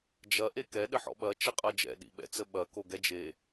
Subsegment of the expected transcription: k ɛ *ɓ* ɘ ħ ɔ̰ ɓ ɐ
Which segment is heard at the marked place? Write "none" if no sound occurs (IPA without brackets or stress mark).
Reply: ɗ